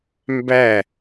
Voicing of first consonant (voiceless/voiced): voiced